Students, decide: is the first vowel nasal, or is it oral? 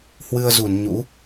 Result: oral